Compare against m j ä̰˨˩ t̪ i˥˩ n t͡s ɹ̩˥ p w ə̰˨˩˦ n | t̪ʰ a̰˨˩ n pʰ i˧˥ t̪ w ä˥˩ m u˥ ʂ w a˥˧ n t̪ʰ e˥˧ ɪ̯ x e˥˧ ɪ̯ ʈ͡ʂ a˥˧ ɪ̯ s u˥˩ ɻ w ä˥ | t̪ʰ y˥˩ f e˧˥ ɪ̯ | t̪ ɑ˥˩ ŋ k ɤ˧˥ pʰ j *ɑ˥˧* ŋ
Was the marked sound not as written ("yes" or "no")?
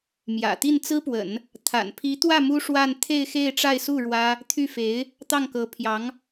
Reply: yes